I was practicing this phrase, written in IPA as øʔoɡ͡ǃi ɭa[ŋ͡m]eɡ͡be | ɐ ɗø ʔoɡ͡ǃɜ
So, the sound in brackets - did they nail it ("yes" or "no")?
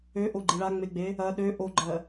yes